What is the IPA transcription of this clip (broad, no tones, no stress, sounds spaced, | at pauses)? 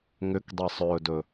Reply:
ŋ ʏ k dˤ e sˤ ɵː d ɵ